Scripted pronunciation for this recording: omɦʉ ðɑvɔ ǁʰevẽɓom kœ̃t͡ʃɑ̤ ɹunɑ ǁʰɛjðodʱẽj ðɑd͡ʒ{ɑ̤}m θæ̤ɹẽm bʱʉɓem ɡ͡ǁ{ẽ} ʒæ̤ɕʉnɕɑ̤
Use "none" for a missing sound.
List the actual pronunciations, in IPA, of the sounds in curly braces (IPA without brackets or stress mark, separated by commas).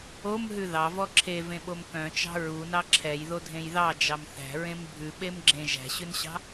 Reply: ɑ, ẽ